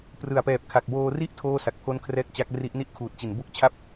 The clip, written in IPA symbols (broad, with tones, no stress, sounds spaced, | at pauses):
p r ɯ˨˩ a̯ p ɛː˨˩ p̚ kʰ a˨˩ k̚ w oː˧ r i˥˩ ʔ tʰ oː˥˩ s a˨˩ k̚ pʰ o˥˩ n kʰ r ɛː˦˥ k̚ t͡ɕ a˦˥ k̚ r i˦˥ ʔ n i˥˩ ʔ kʰ uː˨˩ t̚ t͡ɕ i˨˩ n b o˥˩ k̚ t͡ɕʰ a˥˩ p̚